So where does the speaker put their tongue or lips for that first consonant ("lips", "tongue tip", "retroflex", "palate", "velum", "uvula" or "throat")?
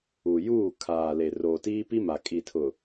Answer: palate